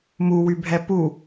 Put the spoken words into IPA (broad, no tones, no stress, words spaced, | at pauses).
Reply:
muwybʱɛ pu